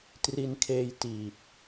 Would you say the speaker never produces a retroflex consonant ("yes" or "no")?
yes